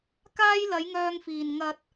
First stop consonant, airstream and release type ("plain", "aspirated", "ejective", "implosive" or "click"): plain